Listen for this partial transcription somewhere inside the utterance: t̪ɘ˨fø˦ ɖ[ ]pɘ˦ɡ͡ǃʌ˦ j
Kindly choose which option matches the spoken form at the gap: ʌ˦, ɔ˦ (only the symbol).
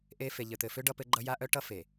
ʌ˦